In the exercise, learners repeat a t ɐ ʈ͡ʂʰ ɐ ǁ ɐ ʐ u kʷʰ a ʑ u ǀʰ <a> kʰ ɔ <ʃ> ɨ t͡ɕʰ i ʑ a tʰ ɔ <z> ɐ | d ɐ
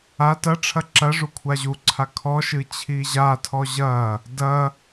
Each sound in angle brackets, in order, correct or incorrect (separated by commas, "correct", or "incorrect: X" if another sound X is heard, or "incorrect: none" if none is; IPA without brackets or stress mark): correct, correct, incorrect: ʑ